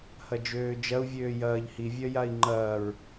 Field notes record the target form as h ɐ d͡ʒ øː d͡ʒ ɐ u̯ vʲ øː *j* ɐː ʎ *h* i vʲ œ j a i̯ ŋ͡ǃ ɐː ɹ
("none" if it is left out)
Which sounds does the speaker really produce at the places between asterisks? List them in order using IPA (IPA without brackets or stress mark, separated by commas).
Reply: j, h